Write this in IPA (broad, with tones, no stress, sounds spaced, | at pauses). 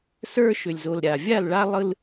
s ə˞˦ ʃ ʏ˨ lʲ z o˨ l ɾʲ a˨ vʲ a˦˨ l ɭ a˦ lˠ ɯ˦ l